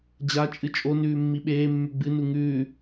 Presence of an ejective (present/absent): present